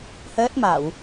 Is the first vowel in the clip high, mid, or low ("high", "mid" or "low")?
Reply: mid